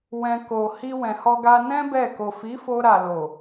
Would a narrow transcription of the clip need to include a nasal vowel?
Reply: yes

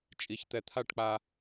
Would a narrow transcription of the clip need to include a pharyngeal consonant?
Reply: no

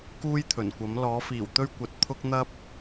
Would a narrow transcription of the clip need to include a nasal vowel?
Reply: no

